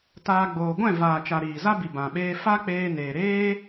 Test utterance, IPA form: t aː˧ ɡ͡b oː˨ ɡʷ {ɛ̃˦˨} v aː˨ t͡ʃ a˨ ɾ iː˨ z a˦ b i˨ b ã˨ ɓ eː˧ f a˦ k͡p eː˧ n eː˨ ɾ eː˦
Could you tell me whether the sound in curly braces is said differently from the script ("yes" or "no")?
no